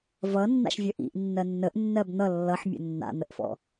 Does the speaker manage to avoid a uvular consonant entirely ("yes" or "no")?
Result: yes